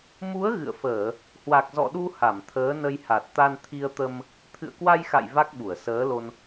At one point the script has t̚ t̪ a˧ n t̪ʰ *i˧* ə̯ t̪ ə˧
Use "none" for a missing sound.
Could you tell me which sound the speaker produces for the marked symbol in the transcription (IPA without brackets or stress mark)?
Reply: i˧